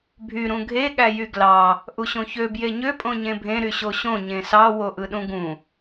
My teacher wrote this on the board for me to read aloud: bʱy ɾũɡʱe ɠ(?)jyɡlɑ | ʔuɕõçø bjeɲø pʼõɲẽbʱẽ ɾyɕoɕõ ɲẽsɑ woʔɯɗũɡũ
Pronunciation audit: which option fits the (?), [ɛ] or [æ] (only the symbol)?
æ